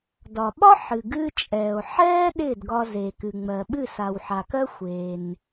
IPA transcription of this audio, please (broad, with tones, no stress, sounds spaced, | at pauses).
d ɒ˩ ɓ ɒ˥ ħ ɨ˩ ɡ ɨ˧ t͡ʃʼ ɛː˩ o̯ ħ ɛː˥ ɗ ɪː˥˩ d ɡ ɒ˧ z e˩ k ɨ˩ ŋ͡m ɜ˩ ɓ ɨ˥˩ s a˩ w ħ a˩ k ɜ˥ xʷ eː˩ n